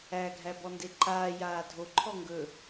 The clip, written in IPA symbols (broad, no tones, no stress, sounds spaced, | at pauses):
æ ɡʱ æ b ɔ n d e ǃ aː j aː dʱ o ǃʰ ɔ ŋ ɡ ɵ